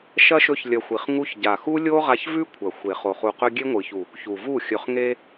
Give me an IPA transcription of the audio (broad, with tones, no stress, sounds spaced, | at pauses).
ʃ ɐ˦ ʃ ɵ˦ ç lʲ ɐ˧ xʷ i˨ χ ŋ u˦ ç ɟ a˨ x u˦ lʲ o˦ ʁ a˧ ç v ʉ˦ kʷʰ ɐ˨ xʷ e˨ χ o˨ χ u˨ q ɵ˧ ɡʲ e˦ ŋʷ ɨ˨ ç u˨ | ç u˨ v u˦˨ xʲ ɵ˨ χ ŋ e˧